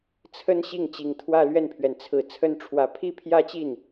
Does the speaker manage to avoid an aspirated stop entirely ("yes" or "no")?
no